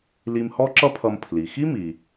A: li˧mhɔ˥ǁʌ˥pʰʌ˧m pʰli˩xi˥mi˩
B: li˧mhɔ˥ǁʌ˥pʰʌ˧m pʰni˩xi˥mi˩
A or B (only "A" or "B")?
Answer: A